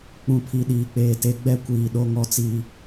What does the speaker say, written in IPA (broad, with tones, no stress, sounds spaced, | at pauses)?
k͡p ũ˨ pʰ i˨ ɗ iː˨ k͡p eː˨ t e˨ ɡ͡b ɛ˦ kʷ iː˨ ɗ o˦ ŋ ɔ˦ t͡s iː˦